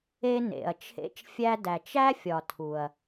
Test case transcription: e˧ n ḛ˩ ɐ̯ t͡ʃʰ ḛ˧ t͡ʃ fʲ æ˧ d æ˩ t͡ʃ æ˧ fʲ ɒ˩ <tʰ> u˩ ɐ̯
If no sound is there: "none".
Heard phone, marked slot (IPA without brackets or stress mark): tʰ